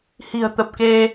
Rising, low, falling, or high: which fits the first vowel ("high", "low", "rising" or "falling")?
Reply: low